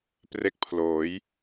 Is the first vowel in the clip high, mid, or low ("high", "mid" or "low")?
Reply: mid